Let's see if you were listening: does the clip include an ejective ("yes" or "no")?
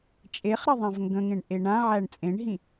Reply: yes